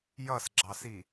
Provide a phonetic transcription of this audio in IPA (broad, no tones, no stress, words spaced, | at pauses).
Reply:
jʌsɡ͡ǁɑsi